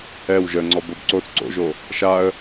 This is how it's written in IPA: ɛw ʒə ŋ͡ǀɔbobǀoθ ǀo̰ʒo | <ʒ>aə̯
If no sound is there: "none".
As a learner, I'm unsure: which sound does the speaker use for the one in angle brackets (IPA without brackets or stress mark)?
ʃ